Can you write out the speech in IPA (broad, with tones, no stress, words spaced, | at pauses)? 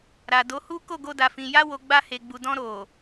ɾa˨do˨˦hu˦ ko˦˨ɡo˧da˨fĩ˨ ja˧wo˨ ɡ͡ba˧he˨ɡ͡bu˨dɔ̃˧ ɾo˨